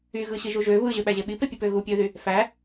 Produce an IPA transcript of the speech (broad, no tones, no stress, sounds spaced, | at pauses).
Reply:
y ɣ ɯ ɕ i ʒ u ʒ ø β ɯ ʑ ø ɓ æ ʑ e ɓ i p e pʲ ɯ p ø ɣ u pʲ ø ð y | f æ